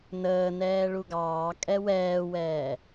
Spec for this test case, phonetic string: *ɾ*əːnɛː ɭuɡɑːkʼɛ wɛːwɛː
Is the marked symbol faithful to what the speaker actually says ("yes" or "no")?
no